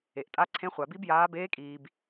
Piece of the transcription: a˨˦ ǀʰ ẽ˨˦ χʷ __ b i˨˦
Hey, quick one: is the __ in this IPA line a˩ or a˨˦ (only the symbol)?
a˩